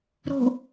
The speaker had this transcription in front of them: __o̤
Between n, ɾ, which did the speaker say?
ɾ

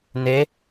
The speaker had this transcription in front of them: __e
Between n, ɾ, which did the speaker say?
n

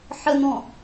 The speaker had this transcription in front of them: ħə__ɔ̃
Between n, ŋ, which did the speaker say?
n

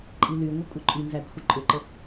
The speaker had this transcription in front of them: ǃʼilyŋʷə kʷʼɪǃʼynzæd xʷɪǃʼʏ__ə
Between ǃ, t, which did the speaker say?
ǃ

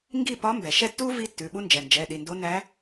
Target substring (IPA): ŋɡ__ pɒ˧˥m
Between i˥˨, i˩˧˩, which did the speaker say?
i˥˨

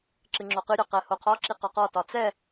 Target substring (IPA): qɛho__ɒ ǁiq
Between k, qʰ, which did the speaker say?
qʰ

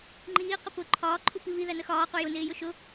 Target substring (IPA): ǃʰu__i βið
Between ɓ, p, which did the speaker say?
p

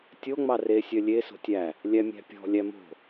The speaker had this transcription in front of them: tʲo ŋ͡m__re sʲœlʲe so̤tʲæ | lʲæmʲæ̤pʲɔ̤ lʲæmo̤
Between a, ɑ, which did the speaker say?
ɑ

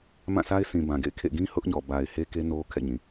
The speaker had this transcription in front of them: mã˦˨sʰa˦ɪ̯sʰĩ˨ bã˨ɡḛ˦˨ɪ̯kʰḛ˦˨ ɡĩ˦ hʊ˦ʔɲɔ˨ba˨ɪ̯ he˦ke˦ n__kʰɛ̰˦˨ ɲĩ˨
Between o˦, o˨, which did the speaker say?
o˦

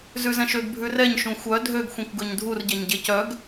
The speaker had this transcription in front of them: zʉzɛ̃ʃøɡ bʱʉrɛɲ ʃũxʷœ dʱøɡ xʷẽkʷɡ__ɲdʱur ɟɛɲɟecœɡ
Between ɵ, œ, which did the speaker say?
ɵ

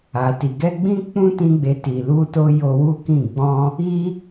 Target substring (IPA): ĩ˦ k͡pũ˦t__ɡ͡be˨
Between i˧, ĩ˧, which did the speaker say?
ĩ˧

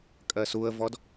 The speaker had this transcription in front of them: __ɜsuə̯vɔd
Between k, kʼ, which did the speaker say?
kʼ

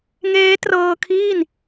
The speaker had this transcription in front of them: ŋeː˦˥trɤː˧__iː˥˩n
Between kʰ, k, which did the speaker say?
kʰ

